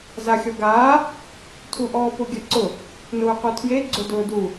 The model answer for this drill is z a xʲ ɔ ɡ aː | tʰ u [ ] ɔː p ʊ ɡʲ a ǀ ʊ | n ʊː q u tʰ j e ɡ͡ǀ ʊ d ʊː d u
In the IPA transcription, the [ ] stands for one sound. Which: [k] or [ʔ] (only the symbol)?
ʔ